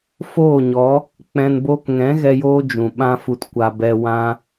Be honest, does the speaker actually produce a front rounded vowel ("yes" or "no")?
no